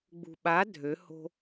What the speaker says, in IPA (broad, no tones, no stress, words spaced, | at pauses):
ɡ͡bṳɓa dʱøho̤